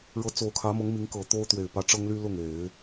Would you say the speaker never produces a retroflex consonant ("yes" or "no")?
no